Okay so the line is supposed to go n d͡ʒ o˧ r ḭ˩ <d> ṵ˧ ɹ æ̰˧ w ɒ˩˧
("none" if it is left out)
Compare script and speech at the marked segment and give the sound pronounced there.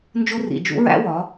d͡ʒ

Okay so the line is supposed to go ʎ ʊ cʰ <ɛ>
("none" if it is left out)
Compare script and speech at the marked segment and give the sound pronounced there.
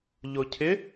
ɪ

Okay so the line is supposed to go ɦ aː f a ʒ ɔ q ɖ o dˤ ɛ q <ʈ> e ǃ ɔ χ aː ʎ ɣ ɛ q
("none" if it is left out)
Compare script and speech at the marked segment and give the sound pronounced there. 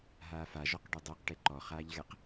ʈ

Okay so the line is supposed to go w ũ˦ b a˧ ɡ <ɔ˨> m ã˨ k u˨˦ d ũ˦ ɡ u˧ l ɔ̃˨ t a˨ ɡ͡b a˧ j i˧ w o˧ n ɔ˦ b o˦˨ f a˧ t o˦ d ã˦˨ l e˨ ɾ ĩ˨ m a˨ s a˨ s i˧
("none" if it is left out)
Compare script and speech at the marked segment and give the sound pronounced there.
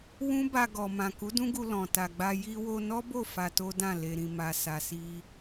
ɔ˨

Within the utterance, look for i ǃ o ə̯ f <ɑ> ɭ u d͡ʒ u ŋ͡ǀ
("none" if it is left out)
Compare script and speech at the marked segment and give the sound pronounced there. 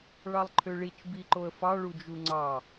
ɑ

